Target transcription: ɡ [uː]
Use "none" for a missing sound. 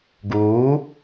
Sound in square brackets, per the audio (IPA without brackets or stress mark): uː